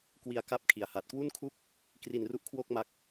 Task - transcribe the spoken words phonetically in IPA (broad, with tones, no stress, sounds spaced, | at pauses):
k w i˧ a̯ k a˦˥ p̚ kʰ i˩˦ a̯ h a˨˩ t̚ k w u˥˩ n kʰ u˥˩ k̚ | k r i˧ n r u˦˥ ʔ kʰ w o˥˩ k̚ m a˦˥ k̚